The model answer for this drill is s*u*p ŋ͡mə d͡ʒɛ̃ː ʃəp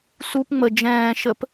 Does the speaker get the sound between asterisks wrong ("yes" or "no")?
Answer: no